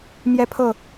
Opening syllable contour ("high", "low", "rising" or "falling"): high